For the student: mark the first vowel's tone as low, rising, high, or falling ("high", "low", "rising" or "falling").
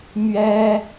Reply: high